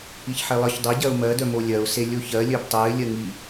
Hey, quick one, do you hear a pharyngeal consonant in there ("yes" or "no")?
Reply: yes